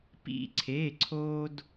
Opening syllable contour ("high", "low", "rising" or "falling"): high